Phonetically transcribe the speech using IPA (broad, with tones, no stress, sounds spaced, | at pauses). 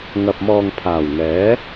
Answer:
ŋ ɐ˨ p̚ m ɔː˨ ŋ pʰ aː˨˩ w ŋ ɛː˨˥